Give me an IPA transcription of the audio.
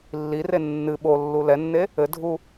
lː i r e nː ɨ ɓ o lː u l ɛ nː e | ɘ dʱ u

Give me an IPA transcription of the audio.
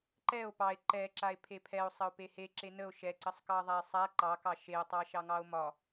ǃ ɛ o̯ p ɑ e̯ ǃ ɛ ǁ a e̯ pʰ e pʰ ɛ o̯ sˤ ə o̯ p e h e ǁ e n ə o̯ ʃ ɛ ǀ ə sˤ k ɑ ðˤ a e̯ sˤ a ǃ ɑ k ɑ ʃ e o̯ tˤ ɑ ʃ ɑ ŋ ɑ o̯ m ɒ

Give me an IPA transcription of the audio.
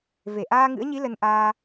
v e˧˩ ʔ aː˧ ŋ ɨ̰˧˥ ə̯ ɲ i˨˦ l ə˧ n ʔ aː˧

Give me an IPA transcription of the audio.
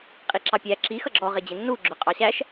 qʼ i ǁ ɑ pʲ æ ǁ i x ʌ ɡ͡ǁ ɔ ʁ ɪ d͡ʑ ɪ nː u ɡ͡ǁ ʊ qʼ ɑ ɕ æ ʃ

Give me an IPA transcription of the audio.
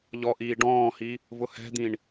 ʎ ɔ ʔ iː ɖ ɔ̃ː h i | v ʊ h ɛ̤ d̪ ĩ ɳ

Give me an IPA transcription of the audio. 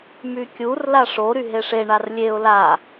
m y kʲ u r l a ʂ o ɾ y ɦ e ʂ e ɳ a r lʲ e ʊ̯ l a

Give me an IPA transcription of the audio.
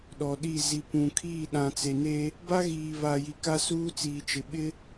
ɗ ɔ˨ ɗ i˦˨ z i˨ p ũ˨ kʰ iː˦˨ ɗ ã˨ t͡s e˨ n e˦ | b a˦ ɣ iː˨ β a˨ j i˨ k a˦ s uː˦ t͡s iː˨ t͡ʃ ɪ˨ ɓ ɪ˦

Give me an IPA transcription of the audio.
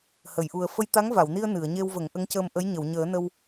h ə˨˩˨ j ʔ u˨˩ ə̯ f ə˧ j t̪ a˧˥ ŋ v a˨˩˨ w n i˧ ə̯ n ɨ˨˩˨ ə̯ ɲ e˧ w v ə˨˩˦ ŋ ʔ ə˧˥ ŋ c əː˧ m ʔ ə˧˥ j ɲ ə˨˩˨ w ɲ əː˨˩˦ n ə˧ w

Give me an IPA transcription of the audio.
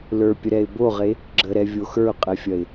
l ə˞ pʲ ə ɾ ɛ ɪ̯ b o ʁ e | ɡ͡ǁ ə ɾ ɛ vʲ o x ə˞ ʊ̯ qʼ ɛ fʲ ɐ ɪ̯

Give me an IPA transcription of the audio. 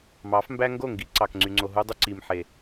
m ɑ˨˦ f m b æ˦ ŋ ɡ o˦˨ ŋ ɡ i˨˦ ǀ ɑ˨ k ŋ͡ǀ y˨ ŋ͡ǀ o˨ ɦ u˦ dˤ y˦ ǀ i˨ m ħ e˨

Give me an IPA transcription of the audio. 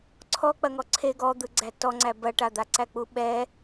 ǀʰ ɔ k͡p ɐ ŋ ɔ ǀʰ e ɡ ɔ d̪ ɯ ɡ͡ǀ æ t ɔ ŋ͡ǀ æ b ɐ ʈ a d̪ a ǀ æ k͡p u ɓ ɛ

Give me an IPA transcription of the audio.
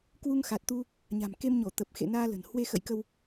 k w u˧ ŋ x a˨˩ t̚ t̪ u˧ | ɲ a̤˨˩ m k e˧ m ɲ o˧˩ t̪ ə˨˩ p̚ x ḛ˧˨ n aː˧ l ə̤˨˩ n h w e˧ x ə̰˧˨ j k ə˧ w

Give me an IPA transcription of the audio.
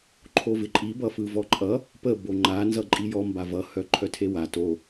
ǃʰ o v ɪ ǃʼ i b ʌ f ɯ v ɔ ǃʼ ʌ | p ə b o ŋ͡ǃ a n z ʌ ǃʼ i j ɔ m b a v ʌ h œ ǃʰ œ tʰ e w a t o

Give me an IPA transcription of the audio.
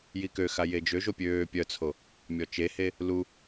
j i k ø x a j e d͡ʒ ø ʒ o pʲ øː pʲ œ t͡sʰ o | mʲ ɔ t͡ʃ e h e | l u

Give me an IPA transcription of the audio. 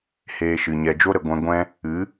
h eː˧ ʃ ɨ˨ ɲ ɛ˨ d͡ʒ o˦ ɾ ə˨ ɡʷ ɛ̃˧ ɡʷ ɛ̃˦ | ɨ˨˦

